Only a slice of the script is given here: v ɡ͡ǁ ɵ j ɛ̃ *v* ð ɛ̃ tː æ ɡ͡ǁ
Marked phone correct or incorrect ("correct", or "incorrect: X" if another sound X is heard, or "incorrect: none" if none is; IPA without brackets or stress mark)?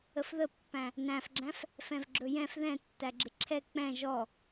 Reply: incorrect: f